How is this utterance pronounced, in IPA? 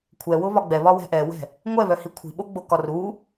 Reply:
kʷʰ ɛ w ʊ β ɒ ɡ͡b ɛ β ɒ w ɛ̤ ʔ ɛ w ɛ̤ | ŋʷ ɛ β œ h i kʷʰ i̤ ɓ o ɡ͡b o k ɒ r u

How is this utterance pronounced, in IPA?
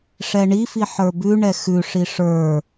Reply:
ʂ ɛ ɳ i f i ħ ə˞ b ʉ ɳ ɛ x ʉ ʂ i ʂ ə˞

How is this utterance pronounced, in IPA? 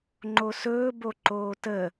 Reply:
ŋ͡ǃ o s ɵː b o ǃ oː t ə

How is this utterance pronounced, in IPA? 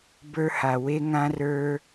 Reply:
b ə˞˦ h a˨ w e˦ ŋ ã˦ r ə˞˦

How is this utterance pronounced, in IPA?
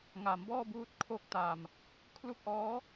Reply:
ŋ a˩˦ m b ɔː˥˩ b uː˦˥ t̚ kʰ o˥˩ k̚ t a˨˩ m | kʰ l u˥˩ k̚ ʔ ɔː˦˥

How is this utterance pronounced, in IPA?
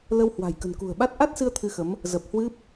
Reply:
l ə˧ w h w a̤˨˩ j k ə̤˨˩ n k ṳ˨˩ ə̯ ɓ a˦˥ t̚ ʔ a˦˥ t̚ s ɨ˧ ə̯ t̪ʰ ɨ˧ x ə˨˦ m | z ə˨˩ p̚ h w ɨ˦˥ p̚

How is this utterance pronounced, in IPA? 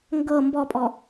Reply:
ŋ ɡ ɤ m b ɔ pʼ ɔ

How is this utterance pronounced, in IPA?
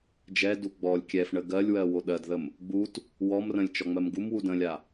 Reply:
d͡ʒ ɛ d u ɡ͡b ɔ lʲ kʲ ɛ f ɳ ə ɡ ɜ lʲ w ɜ w o ɗ ɜ d ð ə m | ɡ͡b u t | w ɔ m r ə̃ lʲ t͡ʃ ɔ ŋ͡m ɜ m ɡ u m w u d ə̃ lʲ a

